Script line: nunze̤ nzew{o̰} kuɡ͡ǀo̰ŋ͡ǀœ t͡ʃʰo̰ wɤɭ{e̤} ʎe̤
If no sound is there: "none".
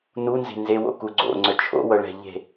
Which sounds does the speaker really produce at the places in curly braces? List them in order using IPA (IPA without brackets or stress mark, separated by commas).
o̰, ɛ̤